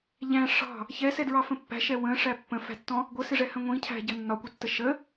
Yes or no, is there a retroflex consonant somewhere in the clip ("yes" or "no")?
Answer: yes